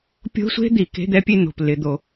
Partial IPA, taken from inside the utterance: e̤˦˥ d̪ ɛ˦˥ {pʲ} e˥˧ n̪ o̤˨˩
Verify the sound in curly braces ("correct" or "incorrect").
correct